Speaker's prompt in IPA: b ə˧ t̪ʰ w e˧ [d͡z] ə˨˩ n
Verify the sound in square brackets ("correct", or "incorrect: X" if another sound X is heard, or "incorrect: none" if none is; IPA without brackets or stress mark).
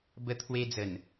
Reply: correct